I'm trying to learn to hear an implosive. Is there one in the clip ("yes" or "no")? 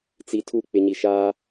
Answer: no